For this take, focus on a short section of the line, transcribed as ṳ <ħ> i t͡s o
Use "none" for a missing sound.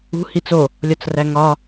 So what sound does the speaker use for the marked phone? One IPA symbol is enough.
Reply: h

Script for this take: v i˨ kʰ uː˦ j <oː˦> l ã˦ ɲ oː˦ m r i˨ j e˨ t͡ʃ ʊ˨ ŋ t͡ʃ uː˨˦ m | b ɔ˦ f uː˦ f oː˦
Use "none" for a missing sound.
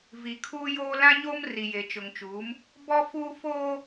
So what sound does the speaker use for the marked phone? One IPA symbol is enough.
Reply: oː˦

